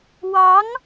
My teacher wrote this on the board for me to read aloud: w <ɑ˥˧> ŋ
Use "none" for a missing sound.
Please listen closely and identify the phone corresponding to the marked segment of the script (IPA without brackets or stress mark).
ɑ˧˥